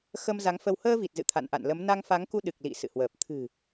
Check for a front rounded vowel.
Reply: absent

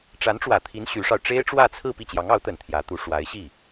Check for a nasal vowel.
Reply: absent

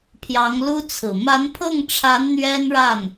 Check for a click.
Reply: absent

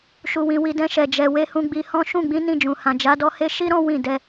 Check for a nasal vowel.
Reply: present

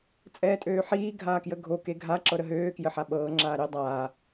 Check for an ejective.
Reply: present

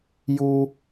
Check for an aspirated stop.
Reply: absent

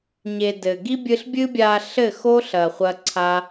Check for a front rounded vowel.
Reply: absent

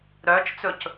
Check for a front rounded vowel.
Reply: present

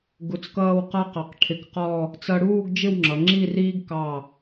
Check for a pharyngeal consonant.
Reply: absent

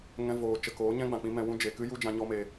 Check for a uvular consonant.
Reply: absent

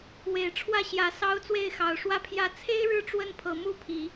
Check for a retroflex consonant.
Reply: present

